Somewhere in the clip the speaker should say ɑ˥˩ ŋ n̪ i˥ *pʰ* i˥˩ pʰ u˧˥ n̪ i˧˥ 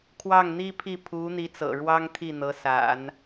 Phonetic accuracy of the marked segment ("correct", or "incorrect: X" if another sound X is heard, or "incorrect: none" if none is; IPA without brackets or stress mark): correct